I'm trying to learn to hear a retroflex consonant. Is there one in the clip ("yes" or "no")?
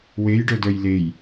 yes